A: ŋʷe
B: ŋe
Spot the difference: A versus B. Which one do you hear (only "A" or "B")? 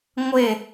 A